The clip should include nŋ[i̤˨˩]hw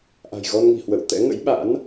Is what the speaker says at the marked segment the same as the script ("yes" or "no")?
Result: yes